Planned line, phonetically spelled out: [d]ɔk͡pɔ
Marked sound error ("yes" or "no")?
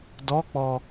no